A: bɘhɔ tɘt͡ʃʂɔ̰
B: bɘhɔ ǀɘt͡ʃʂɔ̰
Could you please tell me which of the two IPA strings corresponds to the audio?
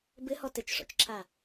A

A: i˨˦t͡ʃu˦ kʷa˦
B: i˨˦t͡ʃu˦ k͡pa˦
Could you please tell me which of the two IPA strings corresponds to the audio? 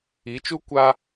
A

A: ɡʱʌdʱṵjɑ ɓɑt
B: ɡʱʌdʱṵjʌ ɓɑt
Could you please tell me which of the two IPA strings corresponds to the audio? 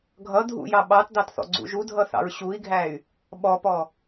A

